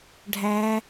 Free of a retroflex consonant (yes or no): no